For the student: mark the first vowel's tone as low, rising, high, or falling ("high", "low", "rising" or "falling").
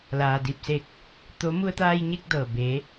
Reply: low